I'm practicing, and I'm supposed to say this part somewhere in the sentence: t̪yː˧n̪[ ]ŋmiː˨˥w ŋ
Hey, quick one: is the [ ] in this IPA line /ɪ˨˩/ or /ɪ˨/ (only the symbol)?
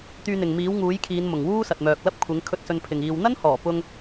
ɪ˨